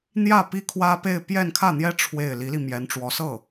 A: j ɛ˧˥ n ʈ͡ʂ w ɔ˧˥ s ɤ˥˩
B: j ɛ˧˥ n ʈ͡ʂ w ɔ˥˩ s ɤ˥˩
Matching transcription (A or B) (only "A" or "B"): A